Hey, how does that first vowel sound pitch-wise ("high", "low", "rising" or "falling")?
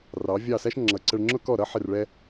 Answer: rising